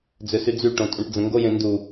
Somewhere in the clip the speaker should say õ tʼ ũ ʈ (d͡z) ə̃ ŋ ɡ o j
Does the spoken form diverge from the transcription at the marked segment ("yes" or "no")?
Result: no